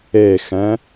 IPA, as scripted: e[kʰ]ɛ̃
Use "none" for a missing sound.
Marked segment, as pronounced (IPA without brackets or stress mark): x